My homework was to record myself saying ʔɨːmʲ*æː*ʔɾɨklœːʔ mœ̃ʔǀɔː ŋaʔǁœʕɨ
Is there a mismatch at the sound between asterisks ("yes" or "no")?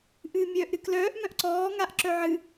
yes